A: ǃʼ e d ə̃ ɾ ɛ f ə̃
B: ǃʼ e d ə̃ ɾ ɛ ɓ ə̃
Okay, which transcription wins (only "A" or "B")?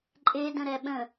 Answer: B